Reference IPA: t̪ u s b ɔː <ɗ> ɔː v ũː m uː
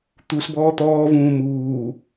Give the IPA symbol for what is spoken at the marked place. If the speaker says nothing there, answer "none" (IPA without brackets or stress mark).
t̪